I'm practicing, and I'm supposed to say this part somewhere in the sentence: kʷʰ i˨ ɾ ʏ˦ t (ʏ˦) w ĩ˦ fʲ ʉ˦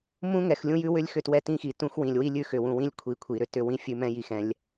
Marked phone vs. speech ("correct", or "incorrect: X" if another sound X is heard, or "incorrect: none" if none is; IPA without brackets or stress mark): correct